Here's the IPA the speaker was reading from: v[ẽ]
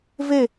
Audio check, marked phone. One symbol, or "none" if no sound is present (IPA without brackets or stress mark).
e